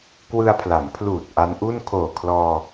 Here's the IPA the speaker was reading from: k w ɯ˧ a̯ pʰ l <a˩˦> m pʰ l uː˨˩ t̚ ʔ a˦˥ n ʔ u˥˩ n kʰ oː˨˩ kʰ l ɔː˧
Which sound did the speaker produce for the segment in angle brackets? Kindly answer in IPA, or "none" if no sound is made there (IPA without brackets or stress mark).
a˩˦